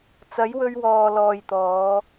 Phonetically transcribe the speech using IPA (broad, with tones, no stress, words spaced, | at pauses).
t͡sɐ˨˥jwɵ˧ɥwɔː˨ lɔː˨jt̪ɔː˨˧